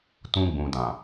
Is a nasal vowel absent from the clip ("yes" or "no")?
no